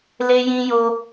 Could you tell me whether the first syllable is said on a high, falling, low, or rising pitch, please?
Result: high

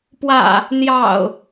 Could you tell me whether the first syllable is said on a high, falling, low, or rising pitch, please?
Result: low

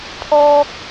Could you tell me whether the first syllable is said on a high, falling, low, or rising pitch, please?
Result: low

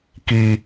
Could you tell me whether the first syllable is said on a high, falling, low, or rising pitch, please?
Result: low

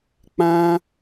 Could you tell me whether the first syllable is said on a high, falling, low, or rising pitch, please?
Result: high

